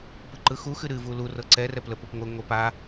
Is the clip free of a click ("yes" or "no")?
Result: no